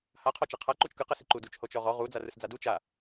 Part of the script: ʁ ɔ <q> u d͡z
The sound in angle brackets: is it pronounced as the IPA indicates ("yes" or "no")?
no